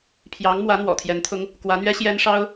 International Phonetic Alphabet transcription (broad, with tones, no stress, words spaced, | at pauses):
pʰjɑ˧˥ŋmwä˧˥ n̪wɔ̰˨˩t̪ʰjɛ˧˥nt̪ʰʊ˥ŋ | kwä˧˥n̪ɥɛ˥ ɕjɛ˥nʂɑ˥ʊ̯